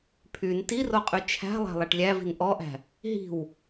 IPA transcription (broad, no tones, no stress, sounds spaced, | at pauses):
pʰ y n t i r o qʼ y t͡ʃʰ æ̤ lˠ æ̤ lˠ æ ʈ lʲ æ v i̤ n ʔ ɔ ʔ æ̤ | ɦ i̤ w